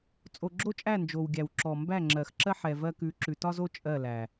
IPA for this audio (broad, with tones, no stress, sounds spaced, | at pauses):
t͡sʼ o˨ ɡ͡ǁ o˦ t͡ʃʼ æ˦˨ n d͡ʒ o˨ w ɡʲ æ˨ w ǁ ɔ˨ m b æ˦˨ ŋ͡ǁ ɜ˨ x ǁ ɜ˦ ħ ɛ˨ v ɜ˧ k ʉ˨˦ ǁ ʉ˨ t ɒ˦ z o˦ t͡ʃʼ ɜ˦˨ l æ˨